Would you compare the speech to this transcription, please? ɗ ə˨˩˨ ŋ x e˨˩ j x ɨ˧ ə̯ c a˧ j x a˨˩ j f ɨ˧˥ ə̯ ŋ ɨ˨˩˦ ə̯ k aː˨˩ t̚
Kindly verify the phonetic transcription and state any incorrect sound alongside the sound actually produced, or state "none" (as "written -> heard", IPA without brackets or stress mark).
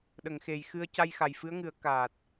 none